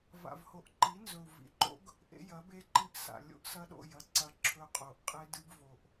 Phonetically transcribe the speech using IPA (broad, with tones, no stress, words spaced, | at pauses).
va̰˨vho˨ʔǃi˨˦ nzɵ˨u̯vḭ˨ǃo̰˦ɡ | ʔḛ˦jɐ˨˦be˦ǃi˦ʔ sa̰˨ lʲo̰˦ʔsɐ˦ɗo̰˦˨jɐ˦ ǀɐ˦ǁʰɵ˦qʼo˨ʔ qʼe˦dɨ˦bvo˨ʔ